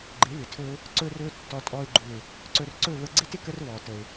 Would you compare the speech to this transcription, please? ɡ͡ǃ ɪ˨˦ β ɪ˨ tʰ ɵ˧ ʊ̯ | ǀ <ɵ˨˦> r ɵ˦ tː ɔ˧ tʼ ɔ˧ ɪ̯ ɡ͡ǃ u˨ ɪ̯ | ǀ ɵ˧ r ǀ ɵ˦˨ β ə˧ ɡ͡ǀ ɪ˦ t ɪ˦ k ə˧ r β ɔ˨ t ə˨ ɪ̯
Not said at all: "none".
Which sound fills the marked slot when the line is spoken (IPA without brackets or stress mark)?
ɵ˦